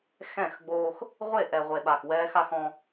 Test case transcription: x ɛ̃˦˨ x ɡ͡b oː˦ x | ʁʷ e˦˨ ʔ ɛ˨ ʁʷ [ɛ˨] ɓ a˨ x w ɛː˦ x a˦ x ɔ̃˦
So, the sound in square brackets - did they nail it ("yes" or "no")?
no